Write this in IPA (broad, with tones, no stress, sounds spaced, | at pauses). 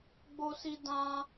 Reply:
ɡ͡b o˦ s i˦ d ã˦